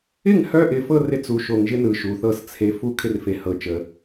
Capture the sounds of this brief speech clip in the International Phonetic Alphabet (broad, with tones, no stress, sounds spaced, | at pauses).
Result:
ɪ˦˨ ŋ h œ˦ ʔ ɪ˨ f ɤ˦ r ɪ˦ t͡s u˨ ʃ o˨ ŋ ʒ ɪ˦ n ɯ˨ ʃ u˨ θ ɤ˦ s t͡sʰ e˦ f u˦ kʰ ɪ˦ r f e˨ h ɤ˨ t͡ʃ ə˨